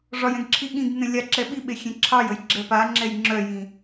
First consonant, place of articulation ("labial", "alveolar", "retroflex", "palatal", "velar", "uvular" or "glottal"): retroflex